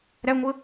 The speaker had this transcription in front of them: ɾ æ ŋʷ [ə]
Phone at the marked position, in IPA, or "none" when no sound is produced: ə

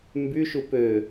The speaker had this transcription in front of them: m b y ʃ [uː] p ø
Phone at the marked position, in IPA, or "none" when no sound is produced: u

